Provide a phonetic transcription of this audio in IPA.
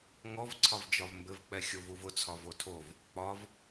ŋɔvǀʰɒvd͡ʒɒv mbɘvk͡pɛ xʲovuvʊt͡sʰɒv otʰov | k͡pɒv

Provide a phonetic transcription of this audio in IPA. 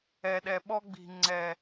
ɛ˨ɗɛ˨ ɓɔ˧ɡ͡bi̤˨ŋ͡ǀɛ˨

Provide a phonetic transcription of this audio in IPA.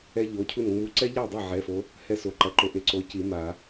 ɛ˦˥ʎo˩˧˩cʰu˥˩n ŋ͡mu˨˦ǀɛ˦˥ʎa˥˩dˤa˥˩ ʕɛ˩˧˩fo˨˦ | hɛ˥˩so˩˧˩ ǃɐ˩˧˩ǃo˨˦ ʔe˨˦ǀo˨˦ci˨˩˦ ma˨˩˦

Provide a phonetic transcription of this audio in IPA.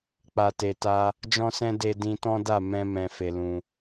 k͡pa˨te˨ta˧ | d͡ʒɔ̃˦sɛ̃˦ de˧dĩ˧ tɔ̃˦da˦˨ mɛ̃˧ mɛ̃˧fe˧lũ˧

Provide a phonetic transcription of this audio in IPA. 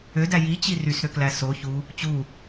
ødæ jit͡ɕi rysɾøklæ so çu | t͡ɕu

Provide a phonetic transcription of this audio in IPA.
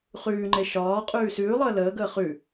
χʉːŋ͡ǃe ʃɒː qʼʉːsʉːlˠəː ləːɡəː χʉ

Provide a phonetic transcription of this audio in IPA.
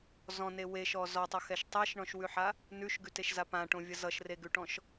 zɔ̃ne weʃɔ zɔtˤʌxɛʃ tˤɛʃɳɔ̃ʃwʉħa | nʉʃɡʉteʃza pãʈõvʲʌ zʌʃreɡʉʈɔ̃ʃ

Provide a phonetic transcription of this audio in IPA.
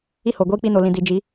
i˦ho˨ ɡʷiː˦k͡pi˦ no˨lĩ˨ di˨d͡ʒi˨˦

